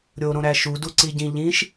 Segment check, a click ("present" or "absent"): present